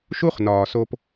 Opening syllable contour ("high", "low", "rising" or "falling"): high